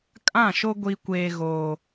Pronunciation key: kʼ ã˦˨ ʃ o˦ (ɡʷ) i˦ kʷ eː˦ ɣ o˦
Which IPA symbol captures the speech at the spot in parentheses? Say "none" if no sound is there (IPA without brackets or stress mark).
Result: ɡʷ